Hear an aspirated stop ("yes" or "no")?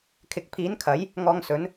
yes